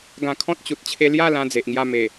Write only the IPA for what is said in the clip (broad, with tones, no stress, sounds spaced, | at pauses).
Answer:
ɡ ã˧ kʰ ɔ̃˦ t̚ t͡ɕ u˨ t̚ t͡ɕʰ e˧ l j a˥˧ l ã˧ d͡z e˨ ʔ ŋ j a˧ m e˨˩